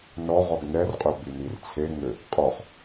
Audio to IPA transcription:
n ɔ ʁ ɔ ɡ n ɛ r qʼ ø b y n i r t͡sʰ e ŋ ø | qʼ ɔ χ

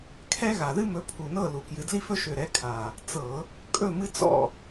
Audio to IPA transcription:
kʰ ɛ˦ ɣ a˨˩ ð ɨ˦ m ɵ˨˦ pʰ u˨˩ n ɤ˥˨ l u˨˩ k j ɨ˨˦ d l i˦ f ɵ˦ ʃ ø˨˩ ɾ ɛ˨˦ kʰ a˨˩ | t͡s ɤ˧˩˧ | kʼ ɵ˥˨ m ɨ˦ t͡s ɔ̰˥˨

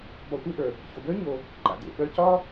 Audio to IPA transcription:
b ɒ˨ tʷ e˦ ʔ ə˞˩ | ç o˩ b ə˞˥ ɲ o˨ | ǃ a̰˩ d ḛ˩ ɓ œ˦ c ɒ˥

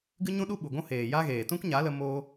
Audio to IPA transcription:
ɡ ɨ˦ ɲ ũ˦ ɗ u˦ ɓ u˨ ɡʷ ũ˦ h eː˨ j a˦ ɣ eː˨ t ũ˦ k ɲ a˨˦ l ə˧ m o˦

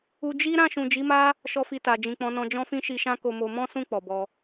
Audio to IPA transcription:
u˧ d͡ʒ i˦ ɾ ã˦˨ ʃ ũ˨ d͡ʒ i˨˦ m a˦ | ʃ ɔ˦ f i˧ t a˨ d͡ʒ ĩ˨ k͡p ɔ̃˨˦ n ɔ̃˧ d͡ʒ ɔ̃˦ f ĩ˦ ʃ i˧ ʃ ã˦ k o˧ m o˧ m ɔ̃˦ s ũ˦˨ k͡p ɔ˨ b ɔ˧

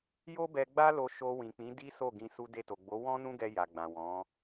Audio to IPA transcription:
j o˦ b ɛ˧ ɡ͡b a˦ l o˧ ʃ o˧ w ĩ˨ k͡p ĩ˨˦ d i˦ s o˦˨ ɡ ĩ˧ s u˧ d e˧ t o˨ ɡ͡b o˨˦ w ɔ̃˦ n ũ˦ ɡ ɛ˧ j a˨ ɡ͡b ã˨ w ɔ̃˨˦

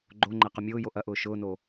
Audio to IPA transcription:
ɡ͡ǃ o ŋ͡ǃ ɛ q ʊ mʲ ʊː j o ʔ ɐ ʔ ʊː ʃ ʊː n o

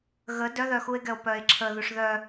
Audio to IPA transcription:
ɣ ə d œ ð œ x u e̯ ɡ ɛ o̯ p œ e̯ ǁʰ ə ð u ʂ ð œ

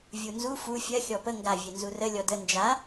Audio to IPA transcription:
vʲ u n z u f u fʲ ɜ xʲ ɔ p ə ŋ ɡ a vʲ e n z u r ə lʲ ɔ d ə n d͡ʒ a

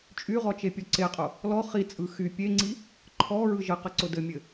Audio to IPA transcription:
t͡ʃʼ y ʁ ɔ t͡ʃ e pʲ ɔ ǀ e qʼ ʊ | l ɔ χ i t͡sʼ ɯ x y pʲ e ŋ͡ǀ i | ǃʰ ɔ ɹ ɯ ʒ ɘ q ɘ ǀ ʊ d ɘ mʲ ɘ

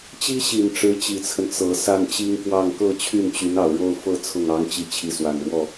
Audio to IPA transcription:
t͡ɕ i˥ ɕ i˨˩ n ʈ͡ʂ ɻ̩˧˥ t͡ɕ i˨˩ t͡sʰ ə˦ n t͡s ɤ˨˩ s a˥˩ n t͡ɕ i˥ ŋ k w ɑ˥˧ ŋ k ɤ˥˧ t͡ɕʰ y˥˩ n t͡ɕ y˧˥ n ɑ˨˩ ʊ̯ ɻ o˥˧ ʊ̯ f ɤ˥˧ t͡sʰ ʊ˥˩ ŋ ɑ˥ ŋ t͡ɕ i˥˩ t͡ɕʰ i˧˥ s w a˨˩ n ɻ w ɔ˥˩

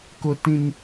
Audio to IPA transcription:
k ʊ˦ t ĩ˦ n

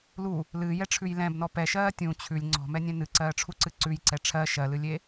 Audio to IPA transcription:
l u | l ɨː j ɛ ʈ͡ʂʰ ʉ j l ɛ̃ b n ɔ p ɛ ʃ ɜː tʲ ũ t͡ɕʰ ʉ lʲ ŋ͡ǀ ɔ̤ m ɛ nʲ ɛ̃ n ɨ ǀ ɜː ʈ͡ʂʰ u ǀ ɨ ǀ ʉ j ǀ ɛ ʈ͡ʂʰ ɜ ʃ ɜ l ɨ lʲ e

